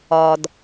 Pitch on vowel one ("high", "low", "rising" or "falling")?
low